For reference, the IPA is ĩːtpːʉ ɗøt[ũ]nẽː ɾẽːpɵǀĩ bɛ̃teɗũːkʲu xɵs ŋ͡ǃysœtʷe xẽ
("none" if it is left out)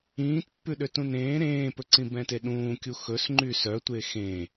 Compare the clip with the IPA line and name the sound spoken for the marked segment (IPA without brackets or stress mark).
ũ